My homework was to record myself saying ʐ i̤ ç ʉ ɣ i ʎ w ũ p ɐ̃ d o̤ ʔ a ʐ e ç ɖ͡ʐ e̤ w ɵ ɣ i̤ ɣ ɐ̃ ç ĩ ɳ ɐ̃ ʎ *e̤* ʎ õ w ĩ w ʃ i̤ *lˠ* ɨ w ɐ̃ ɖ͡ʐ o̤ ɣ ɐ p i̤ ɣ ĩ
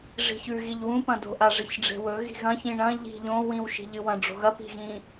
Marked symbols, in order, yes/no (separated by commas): no, no